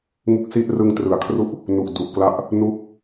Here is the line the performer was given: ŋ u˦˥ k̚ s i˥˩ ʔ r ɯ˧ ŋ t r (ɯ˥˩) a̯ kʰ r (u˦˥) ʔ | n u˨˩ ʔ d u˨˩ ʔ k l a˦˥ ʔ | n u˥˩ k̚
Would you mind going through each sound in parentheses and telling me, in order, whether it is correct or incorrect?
incorrect, correct

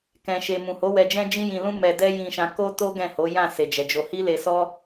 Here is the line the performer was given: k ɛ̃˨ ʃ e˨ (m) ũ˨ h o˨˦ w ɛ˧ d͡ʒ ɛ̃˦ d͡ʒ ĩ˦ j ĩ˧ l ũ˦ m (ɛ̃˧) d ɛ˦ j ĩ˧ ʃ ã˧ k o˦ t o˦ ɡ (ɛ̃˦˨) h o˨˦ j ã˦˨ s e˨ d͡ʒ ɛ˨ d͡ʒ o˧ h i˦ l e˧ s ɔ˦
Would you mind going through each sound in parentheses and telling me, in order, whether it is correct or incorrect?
correct, incorrect, correct

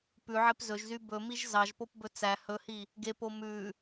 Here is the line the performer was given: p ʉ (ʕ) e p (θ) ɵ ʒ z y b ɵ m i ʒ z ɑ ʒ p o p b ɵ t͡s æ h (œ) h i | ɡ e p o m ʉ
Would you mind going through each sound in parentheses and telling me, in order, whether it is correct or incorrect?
correct, incorrect, incorrect

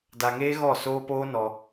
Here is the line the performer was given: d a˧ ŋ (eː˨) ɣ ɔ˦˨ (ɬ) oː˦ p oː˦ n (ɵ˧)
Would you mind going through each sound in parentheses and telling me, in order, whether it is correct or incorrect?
incorrect, incorrect, incorrect

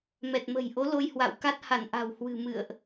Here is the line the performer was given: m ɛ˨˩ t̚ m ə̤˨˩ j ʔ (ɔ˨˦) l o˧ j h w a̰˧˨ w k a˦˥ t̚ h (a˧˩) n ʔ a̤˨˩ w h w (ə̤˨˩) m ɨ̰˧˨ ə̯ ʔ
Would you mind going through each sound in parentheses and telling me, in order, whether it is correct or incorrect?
incorrect, correct, incorrect

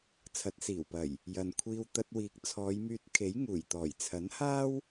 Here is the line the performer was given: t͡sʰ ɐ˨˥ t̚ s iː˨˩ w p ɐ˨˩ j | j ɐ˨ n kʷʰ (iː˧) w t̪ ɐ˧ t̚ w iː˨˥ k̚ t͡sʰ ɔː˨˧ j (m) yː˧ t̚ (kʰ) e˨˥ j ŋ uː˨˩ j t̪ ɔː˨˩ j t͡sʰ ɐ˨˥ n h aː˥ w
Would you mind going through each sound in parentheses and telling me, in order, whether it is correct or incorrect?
correct, correct, correct

